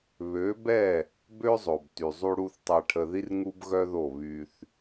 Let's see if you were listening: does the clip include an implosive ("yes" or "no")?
no